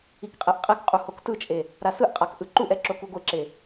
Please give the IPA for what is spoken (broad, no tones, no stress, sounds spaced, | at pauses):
i k qʼ e ʔ qʼ e k qʼ u h o k t ɯ t͡ʃʼ e | ɾ a s ɯ ʔ qʼ a k ʔ ɯ ǃ u ʔ ɛ ǁ o k u ɡʷ e ǁ e